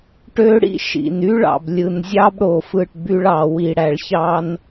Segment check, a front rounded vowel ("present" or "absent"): present